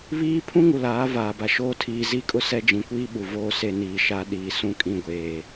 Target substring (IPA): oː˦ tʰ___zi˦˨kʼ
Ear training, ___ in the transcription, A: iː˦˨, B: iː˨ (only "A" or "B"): B